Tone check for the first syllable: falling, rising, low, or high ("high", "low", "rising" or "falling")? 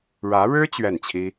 rising